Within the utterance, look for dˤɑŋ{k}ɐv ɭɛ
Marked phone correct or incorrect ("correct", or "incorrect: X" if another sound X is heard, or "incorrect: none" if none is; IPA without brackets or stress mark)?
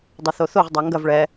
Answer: incorrect: ɡ